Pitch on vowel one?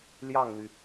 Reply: falling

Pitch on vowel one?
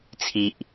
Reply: low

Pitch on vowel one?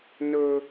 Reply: high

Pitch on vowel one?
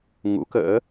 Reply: rising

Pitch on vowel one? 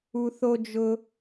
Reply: high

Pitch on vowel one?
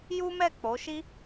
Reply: high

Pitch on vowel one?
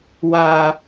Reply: low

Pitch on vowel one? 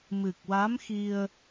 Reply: low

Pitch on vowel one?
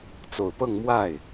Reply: low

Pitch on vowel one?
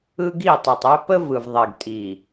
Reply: high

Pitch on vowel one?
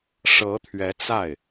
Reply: rising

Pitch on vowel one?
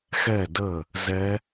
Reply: falling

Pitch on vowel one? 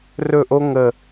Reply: falling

